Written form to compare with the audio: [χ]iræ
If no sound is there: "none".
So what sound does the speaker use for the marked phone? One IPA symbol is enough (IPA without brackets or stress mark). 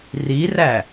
r